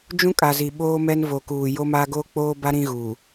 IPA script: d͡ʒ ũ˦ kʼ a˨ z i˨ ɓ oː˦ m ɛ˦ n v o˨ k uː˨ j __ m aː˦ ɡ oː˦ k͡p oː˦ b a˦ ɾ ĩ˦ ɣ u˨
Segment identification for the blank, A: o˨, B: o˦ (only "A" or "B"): B